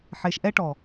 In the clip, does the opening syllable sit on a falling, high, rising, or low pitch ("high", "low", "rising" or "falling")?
low